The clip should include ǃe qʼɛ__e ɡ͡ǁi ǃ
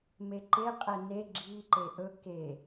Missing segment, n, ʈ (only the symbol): n